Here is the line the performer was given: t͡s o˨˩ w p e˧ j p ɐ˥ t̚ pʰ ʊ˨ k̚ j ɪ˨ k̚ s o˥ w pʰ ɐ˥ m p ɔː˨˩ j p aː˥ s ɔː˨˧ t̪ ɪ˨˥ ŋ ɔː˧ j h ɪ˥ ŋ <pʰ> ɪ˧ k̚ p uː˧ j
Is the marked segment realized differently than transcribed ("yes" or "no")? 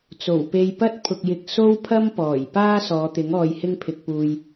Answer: no